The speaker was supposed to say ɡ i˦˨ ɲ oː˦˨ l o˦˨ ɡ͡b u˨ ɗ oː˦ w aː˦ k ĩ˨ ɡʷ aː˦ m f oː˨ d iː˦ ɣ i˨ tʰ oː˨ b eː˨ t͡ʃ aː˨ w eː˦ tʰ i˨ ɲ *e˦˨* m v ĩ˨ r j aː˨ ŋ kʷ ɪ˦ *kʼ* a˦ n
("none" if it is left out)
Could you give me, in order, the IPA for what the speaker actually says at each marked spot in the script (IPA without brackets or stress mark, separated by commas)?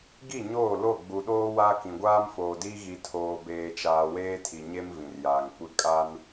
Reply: e˦, kʼ